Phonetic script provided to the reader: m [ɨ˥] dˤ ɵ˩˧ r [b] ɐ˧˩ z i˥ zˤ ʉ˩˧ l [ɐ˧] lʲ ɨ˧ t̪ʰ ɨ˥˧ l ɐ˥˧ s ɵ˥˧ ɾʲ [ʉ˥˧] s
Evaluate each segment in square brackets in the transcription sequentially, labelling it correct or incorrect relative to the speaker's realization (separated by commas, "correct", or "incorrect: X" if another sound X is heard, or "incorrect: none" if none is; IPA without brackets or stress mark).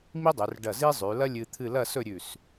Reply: incorrect: i˥, incorrect: ɖ, incorrect: ɐ˥, incorrect: ʉ˧˩